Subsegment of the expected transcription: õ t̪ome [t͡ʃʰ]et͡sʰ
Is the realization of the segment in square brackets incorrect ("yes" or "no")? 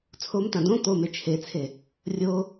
no